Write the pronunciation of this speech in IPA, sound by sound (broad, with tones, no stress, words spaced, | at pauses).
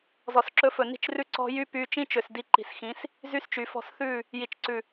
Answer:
zɔ˨sǁɵ˧fɵ˨ ni̤˧t͡ʃrʉ˧ǀɔ̤˧ jy˦py˧ t͡ʃĩ˦t͡ʃø˨s di˧ǃi̤˨sxĩ˨˦s | zy˦st͡ʃy˨fɔ̤˦˨s θʉ˦˨ | ji˨t͡ʃǀʉ˨